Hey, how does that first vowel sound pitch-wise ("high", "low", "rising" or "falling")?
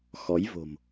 rising